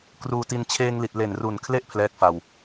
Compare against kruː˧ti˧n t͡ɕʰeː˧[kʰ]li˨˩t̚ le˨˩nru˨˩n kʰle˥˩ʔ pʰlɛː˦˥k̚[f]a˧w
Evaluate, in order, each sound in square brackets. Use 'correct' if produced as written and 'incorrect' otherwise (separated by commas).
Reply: incorrect, correct